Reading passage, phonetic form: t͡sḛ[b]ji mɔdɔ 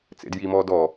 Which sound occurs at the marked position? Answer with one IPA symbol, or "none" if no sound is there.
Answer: d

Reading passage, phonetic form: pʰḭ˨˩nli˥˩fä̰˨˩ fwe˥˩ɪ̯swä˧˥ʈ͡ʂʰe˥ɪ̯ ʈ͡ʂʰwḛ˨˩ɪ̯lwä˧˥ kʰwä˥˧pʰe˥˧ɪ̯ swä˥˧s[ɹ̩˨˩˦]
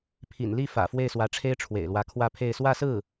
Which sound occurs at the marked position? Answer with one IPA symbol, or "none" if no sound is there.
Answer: ɹ̩˥˩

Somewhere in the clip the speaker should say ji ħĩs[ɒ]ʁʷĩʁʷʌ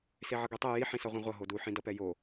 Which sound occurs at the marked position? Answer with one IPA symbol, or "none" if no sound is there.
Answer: ʌ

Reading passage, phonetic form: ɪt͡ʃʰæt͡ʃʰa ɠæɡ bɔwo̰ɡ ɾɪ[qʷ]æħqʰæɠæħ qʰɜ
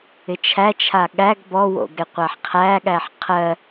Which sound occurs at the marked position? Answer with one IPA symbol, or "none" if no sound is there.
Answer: qʷ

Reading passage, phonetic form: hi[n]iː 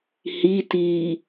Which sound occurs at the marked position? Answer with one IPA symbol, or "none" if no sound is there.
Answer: t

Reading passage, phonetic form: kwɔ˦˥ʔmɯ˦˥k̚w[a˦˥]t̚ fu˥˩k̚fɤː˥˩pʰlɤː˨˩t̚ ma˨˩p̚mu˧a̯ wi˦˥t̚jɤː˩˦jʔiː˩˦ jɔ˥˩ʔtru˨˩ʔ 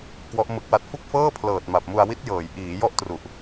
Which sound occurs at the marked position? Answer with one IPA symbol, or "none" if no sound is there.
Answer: a˦˥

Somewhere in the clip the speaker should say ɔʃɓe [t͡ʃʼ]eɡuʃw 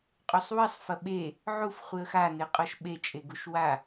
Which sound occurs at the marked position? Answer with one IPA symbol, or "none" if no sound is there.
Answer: t͡ʃʼ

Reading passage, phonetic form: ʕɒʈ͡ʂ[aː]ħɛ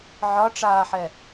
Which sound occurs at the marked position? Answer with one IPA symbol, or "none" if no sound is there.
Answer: aː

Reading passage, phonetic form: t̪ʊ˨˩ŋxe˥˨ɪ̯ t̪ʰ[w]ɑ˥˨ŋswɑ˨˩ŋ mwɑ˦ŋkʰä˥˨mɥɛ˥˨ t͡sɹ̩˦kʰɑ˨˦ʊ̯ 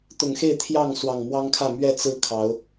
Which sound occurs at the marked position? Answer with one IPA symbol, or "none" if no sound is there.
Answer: j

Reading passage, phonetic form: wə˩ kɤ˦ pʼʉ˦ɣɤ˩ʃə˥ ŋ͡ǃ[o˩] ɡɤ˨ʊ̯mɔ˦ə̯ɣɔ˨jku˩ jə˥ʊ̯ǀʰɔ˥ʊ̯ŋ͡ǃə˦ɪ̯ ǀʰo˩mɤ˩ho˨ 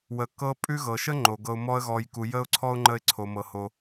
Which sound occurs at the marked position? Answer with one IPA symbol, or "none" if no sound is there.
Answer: o˩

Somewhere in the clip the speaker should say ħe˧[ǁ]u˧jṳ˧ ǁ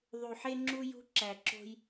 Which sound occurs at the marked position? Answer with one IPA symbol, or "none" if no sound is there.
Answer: ŋ͡ǁ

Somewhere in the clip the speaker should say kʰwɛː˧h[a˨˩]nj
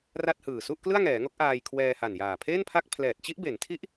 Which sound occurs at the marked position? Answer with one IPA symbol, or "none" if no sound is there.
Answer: a˨˩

